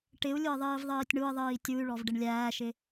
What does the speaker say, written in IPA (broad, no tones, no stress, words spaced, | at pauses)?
ʈɪu̯lʲʊi̯ ðˤiːvðˤiːtʲɳui̯ðˤiː tʲuy̯ɭɔv ɖɪɳlʲæːʃɪ